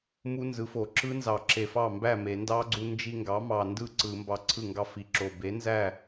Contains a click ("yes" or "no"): yes